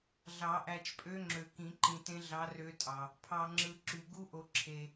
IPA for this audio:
ɮ ɑ˨˩˦ ʔ æ˨ t͡ʃ pʼ ø˧˥ ŋ͡ǁ ø˨ k ĩ˨˩˦ ǃ ĩ˨ t ẽ˧˥ ɮ ɑ˧˥ r ø˧˥ tʼ ɑ˨ | pʰ ɑ˨ ŋ͡ǁ ɯ˨ ǁ y˨ ɡ u˧˥ ʔ o˨ ǁʰ e˨

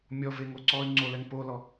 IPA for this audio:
mʲ ɔ v e ŋ o ǀ ɔː y̯ ŋ͡ǀ o l ɛ ŋ p o l ɔ

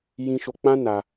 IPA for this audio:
j ĩ˧ ʃ o˧ k͡p ã˦ n a˧

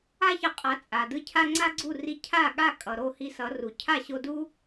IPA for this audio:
a˥ ç ʌ˧ qʼ a˩˥ t͡sʼ a˩ d ɯ˥˩ cʰ a˥ ŋ͡ǀ a˥ ɡ͡ǀ u˥˩ r i˧ cʰ a˥˩ ɠ a˥˩ kʼ ʌ˩ ɾ o˥˩ h i˧ s ʌ˩˥ r u˩ cʰ a˥˩ ɕ o˧ d u˥

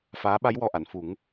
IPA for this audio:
f aː˧˥ ɓ a˧˥ j w ɔ˨˩ ʔ a˨˩˨ n f u˨˩˦ ŋ

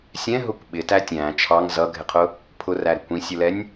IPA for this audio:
sʲ ɛ̃ ɦ ʊ kʷ ɓ ɪ t æ tʲ æ̃ t͡ʃʰ ɑ ŋ z ʌ ɡʱ ɪ qʰ ʊ | pʰ ʊ r æ ɾ ɪ kʷ ĩ sʲ ʊ l ɛ nʲ

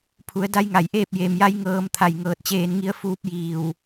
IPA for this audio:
pʰ u˩˧ ə̯ d a˧˥ j ŋ a˩ j ʔ eː˥˨ p̚ j e˩ m j a˧˥ j ŋ ɤː˧ m t̪ʰ a˧˩ j ŋ ɤː˧˩ t̚ t͡ɕ eː˧ n ŋ i˧˥ ə̯ f uː˧˥ p̚ j iː˧˩ w

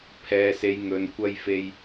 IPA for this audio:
pʰ ɛː˨ s e˨˧ j ŋ ɵ˨ n kʷ ɐ˧ j f e˧ j

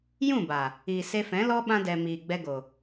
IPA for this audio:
j ũ˦˨ b a˨ | i˨ s e˧ f ɛ̃˨˦ l ɔ˦ ɓ ã˧ d ɛ˨ m iː˨ ɡ͡b ɛ˧ ɡ o˨

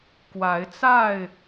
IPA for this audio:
k w a˨˦ ɪ̯ t͡s a˥˨ ɪ̯

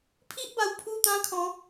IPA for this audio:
pʰ i˦ ʔ b a˨˩ w pʰ u˥˧ t̪ ã˦ kʰ ɔ̃˨˦

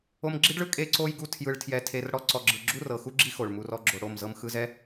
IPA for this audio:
o˧ m ɡ͡ǁ i˦ ɖ ɭ ɯ˦ kʼ e˦ ǀ o˦ j ɡ u˦ tʰ j ɯ˧ ɭ tʰ j ɛ˧ tʰ e˧ r ɽ ɔ˦ ǀ ɔ˧ ɡ͡ǁ ɯ˧ ɡ͡ǁ u˦ r ɤ˨ x u˦ ɡ͡ǁ i˦ x o˨ ɭ m u˧ r ɔ˦ ɡ͡ǁ o˧ ɽ o˦˨ m z ɤ˦ m x ɯ˧ z ɛ˦

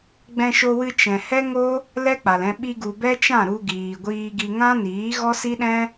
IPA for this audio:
ɡ͡b ɛ̃˧ ʃ o˧ w ɨ˧ t͡ʃ ɛ̃˨ h ɛ˦ ŋ o˦ | l ɛ˦ k͡p a˨ l ɛ̃˧ ɓ i˧ ɡ u˨ b ɛ˦ t͡ʃ ã˦˨ ɾ u˧ ɡ iː˨ ɡʷ iː˧ ɡ i˧ ŋ ã˦ n iː˨˦ ɣ ɔ˦ s i˦ ɗ ɛ̃˦

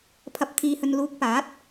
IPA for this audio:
pʰ ɐ˨ p̚ t̪ʰ iː˨ h ɵ˨ n l uː˨˥ k̚ p aː˨˥ t̚

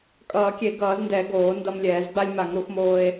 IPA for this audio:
kʼ ʌː˧˩˧ kʲ e˧˩˧ ɡ ʌː˧˩˧ z n d ɛ˧˩˧ ɡ oː˧˩˧ n d ʌ˧ m lʲ ɛː˧˩˧ z ɡ͡b a˧ lʲ m a˧˩˧ ŋ ɾ u˧˩˧ x m oː˧ e̯

